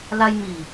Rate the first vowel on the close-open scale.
open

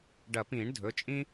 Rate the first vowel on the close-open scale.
open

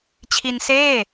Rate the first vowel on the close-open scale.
close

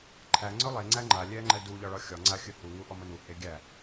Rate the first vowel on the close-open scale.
open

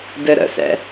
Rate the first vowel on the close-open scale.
mid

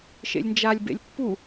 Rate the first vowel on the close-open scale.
mid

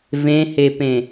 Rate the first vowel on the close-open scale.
mid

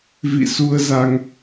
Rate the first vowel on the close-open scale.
close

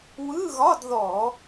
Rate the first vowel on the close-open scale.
close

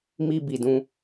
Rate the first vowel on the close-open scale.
close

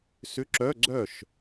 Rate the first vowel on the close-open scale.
close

